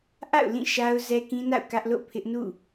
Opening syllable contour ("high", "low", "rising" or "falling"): falling